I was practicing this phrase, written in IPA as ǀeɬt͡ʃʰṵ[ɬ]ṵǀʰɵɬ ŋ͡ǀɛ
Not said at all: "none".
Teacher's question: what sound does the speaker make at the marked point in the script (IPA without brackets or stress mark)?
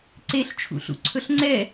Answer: ɬ